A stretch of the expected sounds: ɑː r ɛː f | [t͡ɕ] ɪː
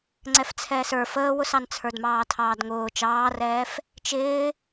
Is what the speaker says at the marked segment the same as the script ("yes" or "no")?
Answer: no